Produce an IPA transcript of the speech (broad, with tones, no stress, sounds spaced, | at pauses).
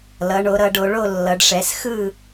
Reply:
l ʌ˩˧ ɳ o˩˧ ɾ ʌ˩˧ ɖ o˩˧ ɭ o˦˨ lː ʌ˩˧ ɖ ʂ ɛ˩˧ s x ɯ˦˨